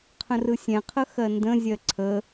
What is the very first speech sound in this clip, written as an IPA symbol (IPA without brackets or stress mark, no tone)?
qʰ